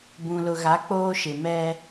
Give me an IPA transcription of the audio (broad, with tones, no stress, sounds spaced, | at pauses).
b ũ˨ l ʊ˨ ɣ a˨˦ k͡p oː˦ ʃ ɪ˨ m ɛ˦